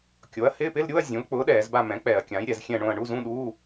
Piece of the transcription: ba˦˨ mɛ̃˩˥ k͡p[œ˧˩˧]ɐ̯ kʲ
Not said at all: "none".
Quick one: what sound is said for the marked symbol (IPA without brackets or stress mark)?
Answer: ɛ˧˩˧